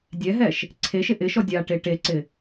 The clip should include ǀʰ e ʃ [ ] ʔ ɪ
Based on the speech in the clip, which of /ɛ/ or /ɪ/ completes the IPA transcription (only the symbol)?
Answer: ɪ